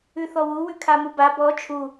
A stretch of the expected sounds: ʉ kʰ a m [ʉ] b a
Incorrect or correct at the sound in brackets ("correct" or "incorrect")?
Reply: incorrect